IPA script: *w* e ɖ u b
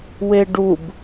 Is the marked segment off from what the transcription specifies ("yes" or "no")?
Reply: no